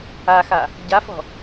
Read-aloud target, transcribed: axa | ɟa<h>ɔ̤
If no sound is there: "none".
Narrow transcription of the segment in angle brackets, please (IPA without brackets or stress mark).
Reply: f